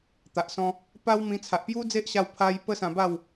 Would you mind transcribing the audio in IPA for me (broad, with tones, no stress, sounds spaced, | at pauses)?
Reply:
t̪ a˨ ʔ s ɔ̃˧ | p a˦ w m ĩ˧ t͡sʰ a˨ ʔ p j u˦ d͡z e˦ ʔ ɕ a˧ w pʰ a˧ j p ə˦ s ã˧ b a˥˧ w